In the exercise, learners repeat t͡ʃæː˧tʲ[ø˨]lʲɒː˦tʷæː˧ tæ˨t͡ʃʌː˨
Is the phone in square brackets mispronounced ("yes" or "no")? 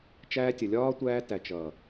yes